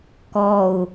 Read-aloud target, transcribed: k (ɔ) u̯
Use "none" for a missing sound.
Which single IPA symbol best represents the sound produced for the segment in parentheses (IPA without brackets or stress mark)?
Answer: ɔ